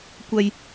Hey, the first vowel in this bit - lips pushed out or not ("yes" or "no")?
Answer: no